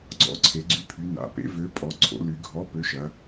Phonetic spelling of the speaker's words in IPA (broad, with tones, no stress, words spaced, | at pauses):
ɡ͡ǀɔ̰˨˥ǀʰe˩˧ɡ͡ǀy˨˥pʰy˩˧ na̰˩˧pḛ˨˥ vø˨˥pʼɔ˩˧ ǀʰo̰˩˧ly˩˧ɡʱɔ˨˥ pø˨˥ʃɐ˩˧